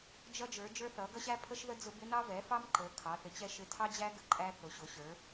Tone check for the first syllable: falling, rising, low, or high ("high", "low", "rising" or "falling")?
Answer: high